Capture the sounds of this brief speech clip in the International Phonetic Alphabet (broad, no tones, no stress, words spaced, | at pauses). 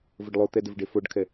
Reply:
vəɖlˠot̪ɛ dɘvɖefoɖkʰɛ